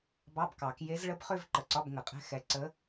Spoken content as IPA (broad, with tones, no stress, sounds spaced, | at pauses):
b ɑ˧˥˧ b k ɑ˨˩˦ k j e˧˥ z ɭ ə˧˥ b χ ø˥˧ v ǃ ə˨˩ ǀ ɒ˧˥˧ b ŋ ə˨˩˦ qʼ ɛ̤˧˥˧ x ɛ˧˥ ǀ ə˧˥